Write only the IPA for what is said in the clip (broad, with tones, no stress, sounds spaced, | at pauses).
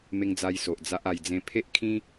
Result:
m e˧ ŋ d͡z a˧ j s o˨ ʔ d͡z a˦ ʔ a˧ j d͡z ẽ˧ pʰ e˦ ʔ kʰ ĩ˦